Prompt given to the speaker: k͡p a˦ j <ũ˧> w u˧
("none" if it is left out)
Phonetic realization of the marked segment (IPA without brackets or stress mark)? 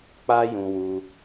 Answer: ũ˧